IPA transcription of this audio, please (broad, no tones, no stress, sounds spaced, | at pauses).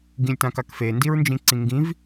ɡ ĩ lʲ t ã k a k f e n d i ɹ n d͡ʒ ĩ ǀ ĩ ŋ ɡ ĩ v